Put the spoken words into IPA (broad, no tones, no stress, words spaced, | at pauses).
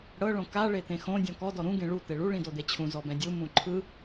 ɽɤ ɭõka ɭet̪ẽxõ dʲɔ̃kɔ dɔɾũ ɡẽɭu t̪eɭu ɭĩdod̪et͡ɕʰũ zɔbɛ̃dʲu mũǃʰɯ